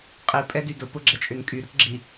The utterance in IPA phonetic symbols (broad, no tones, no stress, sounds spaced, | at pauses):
qʼ i pʼ ɛ d y d ʊ p ʊ ɡ͡ǁ ɛ t͡ʃʼ ʏ n kʼ y ɾ ʊ t ɡ͡ǁ i